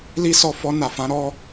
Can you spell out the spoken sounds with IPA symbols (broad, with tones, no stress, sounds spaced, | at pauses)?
l i˦ s ɔ˦˨ f ɔ˧ n a˨ f ã˨˦ ɾ ɔ˦